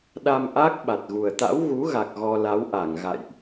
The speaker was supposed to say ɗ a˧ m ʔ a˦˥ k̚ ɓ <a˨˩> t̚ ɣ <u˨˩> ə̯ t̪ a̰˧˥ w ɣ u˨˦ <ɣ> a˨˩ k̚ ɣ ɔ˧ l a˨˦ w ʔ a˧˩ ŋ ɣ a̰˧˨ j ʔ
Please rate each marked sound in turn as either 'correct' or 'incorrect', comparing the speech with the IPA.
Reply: correct, correct, correct

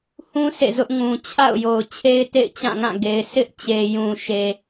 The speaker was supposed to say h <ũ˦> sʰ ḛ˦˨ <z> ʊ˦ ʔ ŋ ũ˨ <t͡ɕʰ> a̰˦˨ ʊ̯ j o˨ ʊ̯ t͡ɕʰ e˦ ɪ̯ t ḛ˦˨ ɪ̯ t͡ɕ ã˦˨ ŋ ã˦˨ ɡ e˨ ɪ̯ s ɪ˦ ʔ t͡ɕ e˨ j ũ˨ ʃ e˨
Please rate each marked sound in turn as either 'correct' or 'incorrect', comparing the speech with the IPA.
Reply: correct, correct, correct

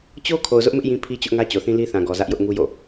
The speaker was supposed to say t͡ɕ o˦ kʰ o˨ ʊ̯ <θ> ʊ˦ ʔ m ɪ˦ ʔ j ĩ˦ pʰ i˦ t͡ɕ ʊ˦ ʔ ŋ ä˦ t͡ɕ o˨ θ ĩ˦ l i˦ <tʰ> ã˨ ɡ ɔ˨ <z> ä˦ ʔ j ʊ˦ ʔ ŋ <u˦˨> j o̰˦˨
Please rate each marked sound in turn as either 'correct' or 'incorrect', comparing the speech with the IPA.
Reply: incorrect: z, incorrect: θ, correct, incorrect: u˦

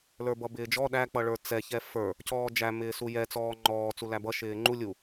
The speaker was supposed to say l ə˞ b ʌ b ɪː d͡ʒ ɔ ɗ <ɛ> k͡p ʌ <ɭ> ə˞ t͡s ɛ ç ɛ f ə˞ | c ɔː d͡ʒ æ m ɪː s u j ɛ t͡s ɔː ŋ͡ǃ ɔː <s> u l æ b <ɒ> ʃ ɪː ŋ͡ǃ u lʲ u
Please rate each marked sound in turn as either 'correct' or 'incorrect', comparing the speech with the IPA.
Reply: incorrect: æ, correct, incorrect: t͡s, incorrect: ʌ

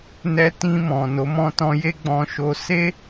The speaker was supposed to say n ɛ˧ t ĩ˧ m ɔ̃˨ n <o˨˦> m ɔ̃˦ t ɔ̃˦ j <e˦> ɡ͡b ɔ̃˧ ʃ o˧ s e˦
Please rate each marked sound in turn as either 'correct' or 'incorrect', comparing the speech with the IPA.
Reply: correct, correct

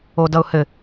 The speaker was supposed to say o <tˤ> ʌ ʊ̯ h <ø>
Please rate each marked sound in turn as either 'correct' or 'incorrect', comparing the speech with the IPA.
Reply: incorrect: d, incorrect: ɘ

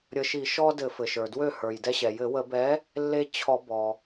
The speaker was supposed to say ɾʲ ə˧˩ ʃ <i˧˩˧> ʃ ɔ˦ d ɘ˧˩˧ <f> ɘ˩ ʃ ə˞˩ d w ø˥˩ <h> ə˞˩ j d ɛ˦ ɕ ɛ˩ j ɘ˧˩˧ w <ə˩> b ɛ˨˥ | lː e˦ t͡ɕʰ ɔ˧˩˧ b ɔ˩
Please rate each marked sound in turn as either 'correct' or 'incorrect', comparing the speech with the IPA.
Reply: correct, correct, correct, incorrect: ə˧˩˧

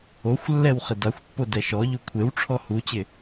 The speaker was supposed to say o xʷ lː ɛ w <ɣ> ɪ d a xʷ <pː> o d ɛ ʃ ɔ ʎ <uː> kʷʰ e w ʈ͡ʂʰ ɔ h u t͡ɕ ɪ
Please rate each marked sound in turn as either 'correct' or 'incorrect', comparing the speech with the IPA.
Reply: incorrect: χ, correct, incorrect: u

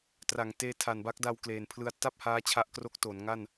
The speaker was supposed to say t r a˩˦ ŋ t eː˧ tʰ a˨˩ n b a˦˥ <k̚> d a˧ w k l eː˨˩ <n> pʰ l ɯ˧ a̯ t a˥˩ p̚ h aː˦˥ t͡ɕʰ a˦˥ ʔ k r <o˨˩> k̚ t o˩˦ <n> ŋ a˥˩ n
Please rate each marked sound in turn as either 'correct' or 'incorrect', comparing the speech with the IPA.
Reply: correct, correct, incorrect: o˦˥, correct

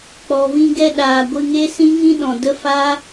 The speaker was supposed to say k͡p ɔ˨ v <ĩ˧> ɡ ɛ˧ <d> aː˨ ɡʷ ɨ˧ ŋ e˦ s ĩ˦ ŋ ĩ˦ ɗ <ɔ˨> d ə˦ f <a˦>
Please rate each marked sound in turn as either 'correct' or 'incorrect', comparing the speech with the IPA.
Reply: correct, incorrect: ɗ, incorrect: ɔ̃˨, correct

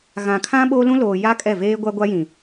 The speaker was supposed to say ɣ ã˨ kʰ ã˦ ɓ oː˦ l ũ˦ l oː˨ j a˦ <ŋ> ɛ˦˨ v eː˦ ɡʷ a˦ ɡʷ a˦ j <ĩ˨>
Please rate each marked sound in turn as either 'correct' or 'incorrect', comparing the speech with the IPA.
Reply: incorrect: kʼ, correct

